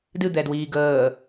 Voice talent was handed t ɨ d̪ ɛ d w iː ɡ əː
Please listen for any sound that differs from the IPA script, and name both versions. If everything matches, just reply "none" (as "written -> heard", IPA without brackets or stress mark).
t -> d